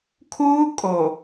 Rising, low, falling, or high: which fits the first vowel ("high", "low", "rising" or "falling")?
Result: high